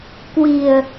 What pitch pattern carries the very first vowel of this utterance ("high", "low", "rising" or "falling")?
low